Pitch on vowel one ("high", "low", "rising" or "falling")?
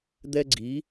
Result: high